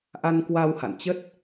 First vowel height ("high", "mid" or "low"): low